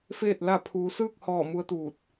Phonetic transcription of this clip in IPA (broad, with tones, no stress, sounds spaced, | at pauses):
f eː˥˨ t̚ l a˥˨ pʰ uː˧ s ɯː˥˨ k̚ h ɔː˧˩ m u˧˥ ə̯ t̪ uː˧˩ t̚